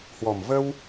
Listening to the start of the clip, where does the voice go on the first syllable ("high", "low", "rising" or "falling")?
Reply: low